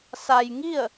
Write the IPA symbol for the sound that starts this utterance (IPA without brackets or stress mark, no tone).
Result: s